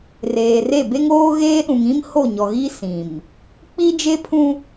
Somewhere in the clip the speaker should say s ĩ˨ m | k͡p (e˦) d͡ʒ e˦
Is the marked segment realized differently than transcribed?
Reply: yes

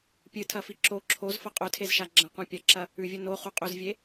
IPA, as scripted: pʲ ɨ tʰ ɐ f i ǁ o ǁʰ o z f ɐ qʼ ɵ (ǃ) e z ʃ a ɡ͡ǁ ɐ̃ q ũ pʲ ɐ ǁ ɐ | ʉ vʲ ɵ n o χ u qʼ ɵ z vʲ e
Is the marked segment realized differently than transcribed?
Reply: yes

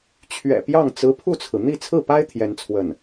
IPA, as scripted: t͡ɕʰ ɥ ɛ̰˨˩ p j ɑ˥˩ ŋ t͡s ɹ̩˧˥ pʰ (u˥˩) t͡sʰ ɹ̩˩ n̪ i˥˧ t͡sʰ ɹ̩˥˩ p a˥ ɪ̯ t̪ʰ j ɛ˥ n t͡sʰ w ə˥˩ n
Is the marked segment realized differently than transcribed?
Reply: no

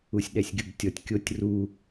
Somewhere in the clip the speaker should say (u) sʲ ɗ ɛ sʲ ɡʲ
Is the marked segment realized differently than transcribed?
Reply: no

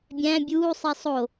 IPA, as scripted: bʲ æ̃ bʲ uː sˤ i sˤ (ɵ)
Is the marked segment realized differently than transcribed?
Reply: yes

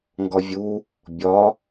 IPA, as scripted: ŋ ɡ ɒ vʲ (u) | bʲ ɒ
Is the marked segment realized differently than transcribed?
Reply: no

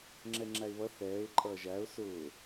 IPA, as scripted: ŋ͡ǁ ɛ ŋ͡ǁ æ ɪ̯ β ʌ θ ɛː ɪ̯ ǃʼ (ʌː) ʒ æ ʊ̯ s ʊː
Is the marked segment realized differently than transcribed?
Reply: no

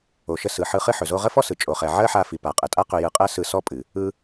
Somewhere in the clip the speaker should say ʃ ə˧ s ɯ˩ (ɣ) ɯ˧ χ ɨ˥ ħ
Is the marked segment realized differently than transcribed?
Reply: yes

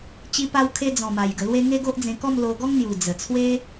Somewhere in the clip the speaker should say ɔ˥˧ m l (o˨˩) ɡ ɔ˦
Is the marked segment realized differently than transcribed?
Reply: yes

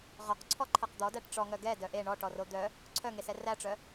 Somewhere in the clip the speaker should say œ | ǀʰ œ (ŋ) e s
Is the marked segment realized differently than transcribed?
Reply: no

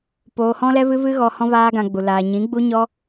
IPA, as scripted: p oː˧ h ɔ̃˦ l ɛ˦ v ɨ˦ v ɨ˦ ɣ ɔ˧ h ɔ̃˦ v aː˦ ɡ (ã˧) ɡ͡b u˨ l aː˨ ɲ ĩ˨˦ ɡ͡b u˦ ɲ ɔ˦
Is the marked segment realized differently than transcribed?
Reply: no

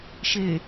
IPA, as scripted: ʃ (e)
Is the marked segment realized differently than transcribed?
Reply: no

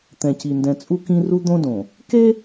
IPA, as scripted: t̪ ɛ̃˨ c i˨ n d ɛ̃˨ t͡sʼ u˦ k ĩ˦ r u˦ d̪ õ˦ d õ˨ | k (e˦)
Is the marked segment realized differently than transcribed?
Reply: no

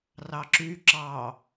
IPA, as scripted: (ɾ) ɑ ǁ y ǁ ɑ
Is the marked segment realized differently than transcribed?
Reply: yes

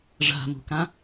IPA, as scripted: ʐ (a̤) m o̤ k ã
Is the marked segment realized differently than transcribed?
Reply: no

